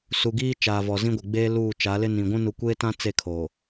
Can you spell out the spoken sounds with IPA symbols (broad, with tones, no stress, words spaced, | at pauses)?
su˨ɡiː˦ t͡ʃaː˨vɔ˨zĩ˦ɡʷɪ˨ ɡ͡beː˦luː˦˨t͡ʃa˨˦lɪ˦ nĩ˨ɡʷũ˦ nu˨kʷeː˦tã˦ t͡se˦˨kʰo˨